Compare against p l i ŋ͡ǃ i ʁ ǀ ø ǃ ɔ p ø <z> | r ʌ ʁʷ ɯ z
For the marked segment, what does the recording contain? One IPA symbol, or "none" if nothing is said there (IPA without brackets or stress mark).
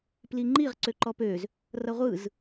z